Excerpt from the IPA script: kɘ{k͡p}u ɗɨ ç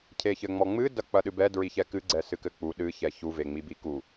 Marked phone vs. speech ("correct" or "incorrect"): correct